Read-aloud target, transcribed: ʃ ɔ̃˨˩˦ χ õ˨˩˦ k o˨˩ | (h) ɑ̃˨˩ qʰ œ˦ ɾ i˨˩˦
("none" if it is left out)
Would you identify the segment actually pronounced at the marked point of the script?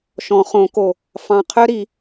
f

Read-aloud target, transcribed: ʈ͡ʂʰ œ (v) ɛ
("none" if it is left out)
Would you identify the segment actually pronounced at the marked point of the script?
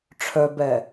b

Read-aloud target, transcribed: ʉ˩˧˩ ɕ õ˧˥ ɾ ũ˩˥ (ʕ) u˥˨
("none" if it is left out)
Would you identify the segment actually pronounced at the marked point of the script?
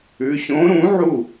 ʕ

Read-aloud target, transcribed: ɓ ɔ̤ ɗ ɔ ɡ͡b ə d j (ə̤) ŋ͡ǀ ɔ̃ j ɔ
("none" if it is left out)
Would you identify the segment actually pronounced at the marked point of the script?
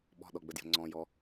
ə̤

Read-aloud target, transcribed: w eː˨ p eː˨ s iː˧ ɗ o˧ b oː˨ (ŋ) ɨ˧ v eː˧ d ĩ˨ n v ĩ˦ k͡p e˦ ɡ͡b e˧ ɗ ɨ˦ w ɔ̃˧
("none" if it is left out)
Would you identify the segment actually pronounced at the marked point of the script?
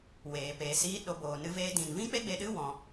n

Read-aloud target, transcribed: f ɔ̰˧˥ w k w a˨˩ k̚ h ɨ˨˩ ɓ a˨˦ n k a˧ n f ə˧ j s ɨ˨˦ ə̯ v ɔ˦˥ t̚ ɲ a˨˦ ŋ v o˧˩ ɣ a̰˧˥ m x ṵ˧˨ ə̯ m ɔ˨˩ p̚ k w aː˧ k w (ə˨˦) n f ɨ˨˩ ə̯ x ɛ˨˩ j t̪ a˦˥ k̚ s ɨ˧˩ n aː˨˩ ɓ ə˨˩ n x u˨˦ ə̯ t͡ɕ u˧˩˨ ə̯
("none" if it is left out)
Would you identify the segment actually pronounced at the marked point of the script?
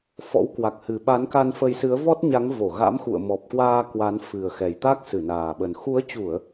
a˨˦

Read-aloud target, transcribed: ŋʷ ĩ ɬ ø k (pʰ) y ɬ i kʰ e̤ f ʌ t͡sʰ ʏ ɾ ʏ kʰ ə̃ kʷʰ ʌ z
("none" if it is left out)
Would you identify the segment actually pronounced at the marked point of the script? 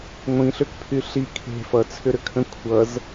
pʰ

